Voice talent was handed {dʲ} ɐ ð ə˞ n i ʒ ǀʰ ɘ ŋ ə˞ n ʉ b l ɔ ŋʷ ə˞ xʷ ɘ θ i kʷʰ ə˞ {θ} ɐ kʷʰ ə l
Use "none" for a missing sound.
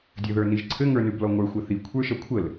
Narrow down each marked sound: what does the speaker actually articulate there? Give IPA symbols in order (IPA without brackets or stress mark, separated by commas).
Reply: dʲ, ʃ